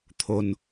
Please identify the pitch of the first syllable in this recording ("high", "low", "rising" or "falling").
low